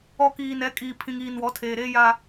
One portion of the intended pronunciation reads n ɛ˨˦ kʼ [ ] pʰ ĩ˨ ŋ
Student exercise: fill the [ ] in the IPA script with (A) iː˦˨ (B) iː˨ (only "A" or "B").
B